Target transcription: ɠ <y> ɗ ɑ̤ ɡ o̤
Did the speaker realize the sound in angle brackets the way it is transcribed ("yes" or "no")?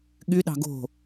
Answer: yes